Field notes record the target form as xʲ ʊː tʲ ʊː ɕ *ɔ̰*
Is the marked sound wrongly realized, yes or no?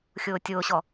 yes